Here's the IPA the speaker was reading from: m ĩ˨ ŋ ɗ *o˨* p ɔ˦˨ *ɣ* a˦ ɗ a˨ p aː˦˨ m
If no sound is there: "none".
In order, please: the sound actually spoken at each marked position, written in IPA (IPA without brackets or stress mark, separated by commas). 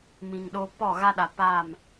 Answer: o˦, ɣ